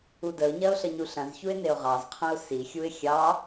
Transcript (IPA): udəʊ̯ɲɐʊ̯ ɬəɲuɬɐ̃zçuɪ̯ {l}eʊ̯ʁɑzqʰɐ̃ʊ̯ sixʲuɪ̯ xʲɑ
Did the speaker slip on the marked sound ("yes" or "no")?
yes